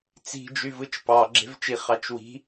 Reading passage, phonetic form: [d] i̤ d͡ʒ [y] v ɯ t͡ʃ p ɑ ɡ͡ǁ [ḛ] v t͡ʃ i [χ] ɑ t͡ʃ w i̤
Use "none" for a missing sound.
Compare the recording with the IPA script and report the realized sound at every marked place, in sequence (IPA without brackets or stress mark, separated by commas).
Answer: t͡s, y, e̤, χ